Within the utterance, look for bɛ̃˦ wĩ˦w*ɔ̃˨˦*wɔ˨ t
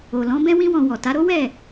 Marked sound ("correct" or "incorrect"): incorrect